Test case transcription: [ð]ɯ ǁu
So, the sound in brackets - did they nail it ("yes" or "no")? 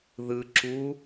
yes